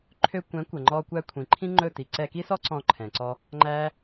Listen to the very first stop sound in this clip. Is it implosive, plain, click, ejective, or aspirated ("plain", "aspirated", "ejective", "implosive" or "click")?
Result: click